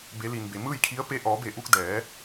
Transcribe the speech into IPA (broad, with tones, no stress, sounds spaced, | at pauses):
b e˩˧ l i˩ n b e˩ m ɯː˥˨ j kʰ i˧˥ ə̯ p e˧˥ ʔ ɔː˩˧ b e˧˩ ʔ u˧ k̚ d ɛː˩˧